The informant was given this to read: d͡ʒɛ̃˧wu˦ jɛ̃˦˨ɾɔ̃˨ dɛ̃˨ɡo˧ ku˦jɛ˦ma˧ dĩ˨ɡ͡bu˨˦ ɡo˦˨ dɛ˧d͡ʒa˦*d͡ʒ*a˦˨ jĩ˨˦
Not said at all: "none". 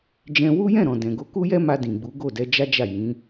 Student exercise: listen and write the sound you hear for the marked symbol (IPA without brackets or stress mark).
d͡ʒ